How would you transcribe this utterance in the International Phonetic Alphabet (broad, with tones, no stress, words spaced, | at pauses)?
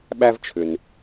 ɓæ˦vt͡ʃʰʏ˨n